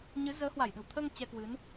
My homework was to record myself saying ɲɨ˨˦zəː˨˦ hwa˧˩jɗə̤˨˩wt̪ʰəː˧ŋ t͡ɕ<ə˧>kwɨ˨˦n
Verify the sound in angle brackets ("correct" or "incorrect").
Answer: incorrect